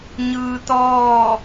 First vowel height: high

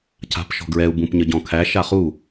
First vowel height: low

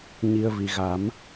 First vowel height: high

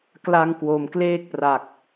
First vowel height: low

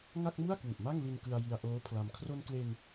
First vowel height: low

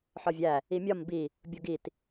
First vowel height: low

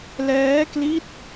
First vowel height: mid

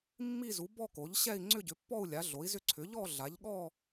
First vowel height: high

